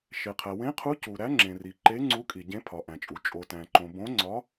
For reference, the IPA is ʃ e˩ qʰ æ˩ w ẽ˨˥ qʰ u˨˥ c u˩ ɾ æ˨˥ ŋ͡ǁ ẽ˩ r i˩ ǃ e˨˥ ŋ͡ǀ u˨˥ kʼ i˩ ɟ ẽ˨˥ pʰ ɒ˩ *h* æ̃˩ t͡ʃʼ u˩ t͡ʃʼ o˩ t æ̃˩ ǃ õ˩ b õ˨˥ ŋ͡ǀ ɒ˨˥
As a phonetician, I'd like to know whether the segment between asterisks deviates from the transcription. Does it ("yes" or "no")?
yes